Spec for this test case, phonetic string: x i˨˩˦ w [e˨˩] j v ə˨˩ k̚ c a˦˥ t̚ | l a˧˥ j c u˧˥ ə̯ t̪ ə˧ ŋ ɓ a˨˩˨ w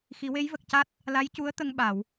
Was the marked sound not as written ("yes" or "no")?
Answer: yes